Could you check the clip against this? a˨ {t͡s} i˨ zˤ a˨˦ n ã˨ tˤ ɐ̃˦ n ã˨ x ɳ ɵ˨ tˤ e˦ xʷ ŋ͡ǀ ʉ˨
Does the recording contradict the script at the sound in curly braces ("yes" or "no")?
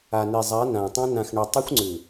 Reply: yes